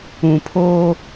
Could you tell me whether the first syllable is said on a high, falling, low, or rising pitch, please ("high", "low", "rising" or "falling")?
low